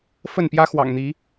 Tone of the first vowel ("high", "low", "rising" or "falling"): falling